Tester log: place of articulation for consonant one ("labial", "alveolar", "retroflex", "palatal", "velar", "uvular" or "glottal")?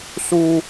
alveolar